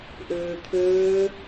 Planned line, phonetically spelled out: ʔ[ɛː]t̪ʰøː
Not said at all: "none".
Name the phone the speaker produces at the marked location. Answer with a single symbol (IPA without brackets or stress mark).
øː